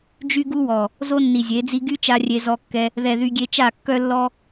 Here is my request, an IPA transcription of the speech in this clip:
d͡ʒy˦ɡu˦wɔ˨ | zo˦nːi˨zʲe˨˦d͡zi˦ ɡy˦t͡ʃa˧ rʲe˧zɔ˧kːɛ˧ | ðɛ˨ðy˧ɡʲe˧t͡ʃa˦˨ kːœ˦ lːɔ˦

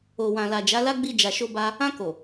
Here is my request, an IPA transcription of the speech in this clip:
o˨wã˨ la˨d͡ʒa˨˦la˦ ɡ͡bi˧d͡ʒa˨ʃo˧ba˧ | ã˧ko˨

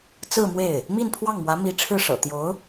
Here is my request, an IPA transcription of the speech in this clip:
t͡sɹ̩˥˧mwe˥˩ɪ̯ | mi˥˧n pʰwɑ˥˩ŋmwä˧˥mi˧˥ ʈ͡ʂʰɻ̩˥˩ʂɤ̰˨˩ t̪jo˧˥ʊ̯

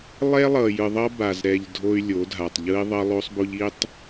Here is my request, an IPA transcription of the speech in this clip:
lˠɛ˦lˠʌ˨ jɯ˨ðˤʌ˦ ba˨z ɾɛ˨ʎ dʱo˦y̯lʲo˨˦dʱa˨tˤ ʎɯ˦i̯ðˤʌ˦lˠo˦sˤbo˦ʎ i˦tˤ

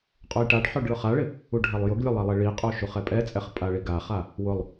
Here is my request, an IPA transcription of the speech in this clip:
qʼojʈaɖħɔɖ ɭʊχaɭɪ | uɖʱalˠjʊɡlʲʊ lˠɛlˠeɭiqʼo ʃuχɛpʼɛt͡sʼɛχ pʼaɭiɡaχa | wʊlˠ

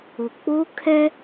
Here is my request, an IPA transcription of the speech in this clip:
ʊ˨k͡po˦ kʰɛ˦

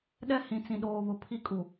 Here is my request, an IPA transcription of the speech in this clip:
ɗɛ˦hĩ˨ t͡sĩ˨ɗoː˨ βʊ˨pʰi˦ kʼu˨

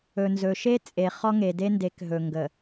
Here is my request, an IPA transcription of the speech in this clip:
ɵ˨nzɵ˨ʃe˦ t͡sʼe˨ χɔ˦ŋe˨de˦nde˨˦k ɦɵ˨ŋɡə˨

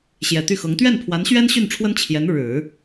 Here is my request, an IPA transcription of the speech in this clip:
ɕjɛ˨˩t̪y˥˩xɤ˧˥ŋ t̪ɥɛ˥˩npʰwa˧˥nɕɥɛ˥n ɕy˥˩nʈ͡ʂʰwə˥n t͡ɕʰjɛ˧˥n ɻɻ̩˨˩˦

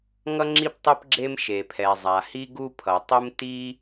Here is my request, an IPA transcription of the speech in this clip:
ŋʌ˥ŋ͡ǁi˥p tˤɯ˥pɡ͡ǁe˥m ʃe˩pʰɛ˩ zˤa˩hi˥ ɡu˥pʰʌ˩tˤu˥m ti˥

